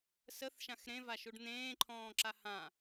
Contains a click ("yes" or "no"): yes